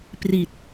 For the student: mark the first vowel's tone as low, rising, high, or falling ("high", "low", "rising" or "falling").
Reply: low